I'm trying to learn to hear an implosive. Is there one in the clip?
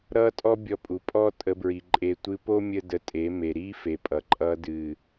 no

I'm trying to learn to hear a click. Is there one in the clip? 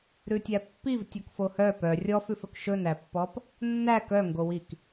no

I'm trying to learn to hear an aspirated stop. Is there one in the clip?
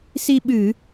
no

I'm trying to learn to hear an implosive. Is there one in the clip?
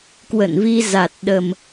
yes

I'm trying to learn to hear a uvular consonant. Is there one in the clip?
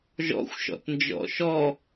no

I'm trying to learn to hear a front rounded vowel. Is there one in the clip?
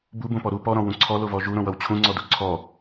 no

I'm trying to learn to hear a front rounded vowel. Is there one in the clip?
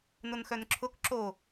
yes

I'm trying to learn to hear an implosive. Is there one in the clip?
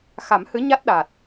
yes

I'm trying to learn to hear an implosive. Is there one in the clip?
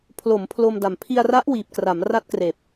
no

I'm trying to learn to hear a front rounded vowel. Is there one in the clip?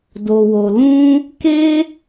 no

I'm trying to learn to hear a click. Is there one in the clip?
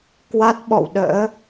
no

